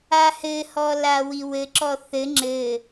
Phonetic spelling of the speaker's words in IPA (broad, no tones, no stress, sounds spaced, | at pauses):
a h ɘ h ɔ l a w i w ɘ ǁ ɔ θ ɘ ŋ͡ǁ ɘ